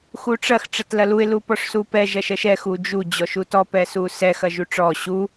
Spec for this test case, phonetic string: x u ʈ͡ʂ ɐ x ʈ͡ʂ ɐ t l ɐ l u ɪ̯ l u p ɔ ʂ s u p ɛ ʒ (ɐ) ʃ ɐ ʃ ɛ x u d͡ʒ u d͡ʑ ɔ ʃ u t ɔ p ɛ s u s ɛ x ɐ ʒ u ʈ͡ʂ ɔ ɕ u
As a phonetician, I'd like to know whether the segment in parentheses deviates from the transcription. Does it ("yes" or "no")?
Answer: no